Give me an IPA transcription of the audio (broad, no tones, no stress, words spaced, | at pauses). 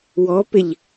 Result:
wɔpɪʎ